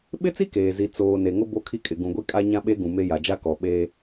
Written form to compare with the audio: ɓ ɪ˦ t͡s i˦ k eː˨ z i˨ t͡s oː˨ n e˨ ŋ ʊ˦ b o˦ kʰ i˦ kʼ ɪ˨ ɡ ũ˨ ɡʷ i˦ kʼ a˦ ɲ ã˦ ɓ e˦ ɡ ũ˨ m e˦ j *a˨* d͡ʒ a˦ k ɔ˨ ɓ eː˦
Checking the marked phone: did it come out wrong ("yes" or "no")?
no